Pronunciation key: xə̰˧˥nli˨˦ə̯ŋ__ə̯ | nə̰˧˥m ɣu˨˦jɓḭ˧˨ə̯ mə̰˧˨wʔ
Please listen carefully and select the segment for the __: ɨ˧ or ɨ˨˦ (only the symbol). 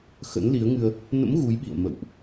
ɨ˧